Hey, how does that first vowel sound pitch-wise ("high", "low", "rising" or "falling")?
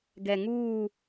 low